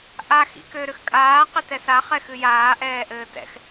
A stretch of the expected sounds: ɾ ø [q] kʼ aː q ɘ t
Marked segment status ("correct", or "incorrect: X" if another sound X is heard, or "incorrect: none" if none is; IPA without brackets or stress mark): incorrect: x